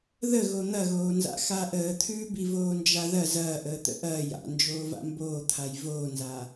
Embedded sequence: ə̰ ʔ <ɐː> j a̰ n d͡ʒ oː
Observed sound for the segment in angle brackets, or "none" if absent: ɐː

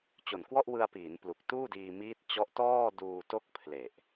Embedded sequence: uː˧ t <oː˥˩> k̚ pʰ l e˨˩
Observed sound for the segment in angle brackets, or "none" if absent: o˥˩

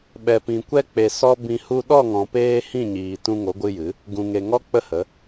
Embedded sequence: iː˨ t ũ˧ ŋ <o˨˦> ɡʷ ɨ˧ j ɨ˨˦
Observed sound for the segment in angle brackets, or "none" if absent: o˨˦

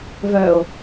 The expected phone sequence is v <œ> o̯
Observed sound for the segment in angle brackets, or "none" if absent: œ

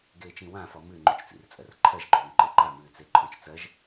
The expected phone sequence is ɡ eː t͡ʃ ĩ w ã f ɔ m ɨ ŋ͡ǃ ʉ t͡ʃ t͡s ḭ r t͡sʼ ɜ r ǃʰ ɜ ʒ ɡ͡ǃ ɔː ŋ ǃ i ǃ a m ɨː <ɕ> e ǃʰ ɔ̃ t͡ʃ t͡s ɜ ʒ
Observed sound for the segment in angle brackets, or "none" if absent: t͡s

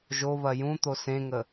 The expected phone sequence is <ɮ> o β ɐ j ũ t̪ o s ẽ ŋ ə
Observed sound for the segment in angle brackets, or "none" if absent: ʒ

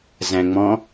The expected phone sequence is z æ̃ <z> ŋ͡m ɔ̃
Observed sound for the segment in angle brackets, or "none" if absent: none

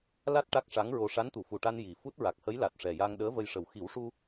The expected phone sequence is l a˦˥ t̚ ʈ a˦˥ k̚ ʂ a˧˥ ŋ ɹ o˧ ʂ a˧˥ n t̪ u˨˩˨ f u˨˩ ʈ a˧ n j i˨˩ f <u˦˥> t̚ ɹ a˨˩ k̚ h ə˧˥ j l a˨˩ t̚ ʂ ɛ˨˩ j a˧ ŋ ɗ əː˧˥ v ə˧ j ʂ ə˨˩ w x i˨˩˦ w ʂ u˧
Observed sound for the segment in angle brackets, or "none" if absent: u˦˥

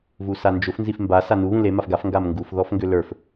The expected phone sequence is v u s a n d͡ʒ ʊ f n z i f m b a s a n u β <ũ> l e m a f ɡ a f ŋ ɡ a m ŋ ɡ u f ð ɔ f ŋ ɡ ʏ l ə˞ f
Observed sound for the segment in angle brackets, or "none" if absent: ũ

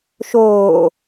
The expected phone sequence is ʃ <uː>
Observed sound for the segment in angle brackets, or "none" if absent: oː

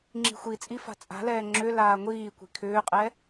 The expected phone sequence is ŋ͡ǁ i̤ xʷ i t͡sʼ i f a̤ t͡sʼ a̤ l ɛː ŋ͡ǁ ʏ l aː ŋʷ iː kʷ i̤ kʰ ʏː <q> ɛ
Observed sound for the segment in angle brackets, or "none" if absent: qʼ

